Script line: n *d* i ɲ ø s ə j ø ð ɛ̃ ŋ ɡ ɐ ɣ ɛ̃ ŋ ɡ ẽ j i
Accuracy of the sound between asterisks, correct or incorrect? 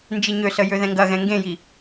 incorrect